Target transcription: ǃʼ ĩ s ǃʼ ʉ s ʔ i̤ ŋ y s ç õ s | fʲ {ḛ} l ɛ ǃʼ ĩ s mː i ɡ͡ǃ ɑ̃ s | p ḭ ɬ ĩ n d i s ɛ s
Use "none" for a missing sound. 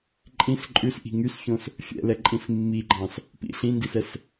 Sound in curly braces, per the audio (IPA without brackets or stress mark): ɛ̰